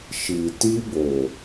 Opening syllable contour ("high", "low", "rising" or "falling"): low